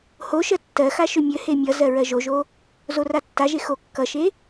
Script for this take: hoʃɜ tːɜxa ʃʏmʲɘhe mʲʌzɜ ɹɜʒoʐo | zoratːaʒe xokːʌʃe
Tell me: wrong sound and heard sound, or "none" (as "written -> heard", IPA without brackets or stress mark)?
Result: ʐ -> ʒ